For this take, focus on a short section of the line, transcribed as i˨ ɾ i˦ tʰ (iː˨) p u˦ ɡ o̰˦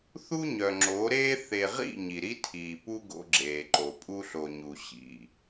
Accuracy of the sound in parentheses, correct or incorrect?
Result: correct